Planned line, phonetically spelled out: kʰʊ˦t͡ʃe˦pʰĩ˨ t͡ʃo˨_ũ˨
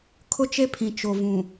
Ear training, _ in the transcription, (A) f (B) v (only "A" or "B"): B